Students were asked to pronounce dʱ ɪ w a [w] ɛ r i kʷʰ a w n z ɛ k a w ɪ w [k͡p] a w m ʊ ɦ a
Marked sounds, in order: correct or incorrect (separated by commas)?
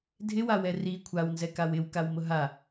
correct, incorrect